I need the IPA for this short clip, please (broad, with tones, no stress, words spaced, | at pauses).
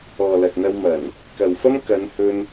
ɔː˨lɐ˨t̚n̪ɐ˧wmɐ˨˩n | kɐ˨wfɐ˥m kɐ˨˧nhɵ˧n